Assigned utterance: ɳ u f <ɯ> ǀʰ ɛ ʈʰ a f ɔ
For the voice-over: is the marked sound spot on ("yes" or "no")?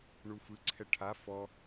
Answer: yes